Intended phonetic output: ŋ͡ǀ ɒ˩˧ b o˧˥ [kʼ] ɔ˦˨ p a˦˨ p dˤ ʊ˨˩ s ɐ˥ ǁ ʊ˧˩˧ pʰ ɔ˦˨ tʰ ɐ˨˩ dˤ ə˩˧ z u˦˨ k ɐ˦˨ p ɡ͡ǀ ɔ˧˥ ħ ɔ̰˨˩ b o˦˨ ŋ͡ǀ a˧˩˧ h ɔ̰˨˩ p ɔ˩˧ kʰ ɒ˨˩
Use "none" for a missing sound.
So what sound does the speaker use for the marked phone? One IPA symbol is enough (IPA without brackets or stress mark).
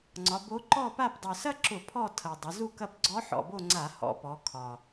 ǃ